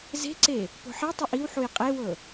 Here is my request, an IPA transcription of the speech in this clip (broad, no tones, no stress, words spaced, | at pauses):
ze̤ǀe | po̤ħetˤɤʔ iwħuj qʼewɤ